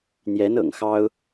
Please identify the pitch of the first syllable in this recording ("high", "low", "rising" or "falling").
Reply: rising